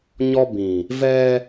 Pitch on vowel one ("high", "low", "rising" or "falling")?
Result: high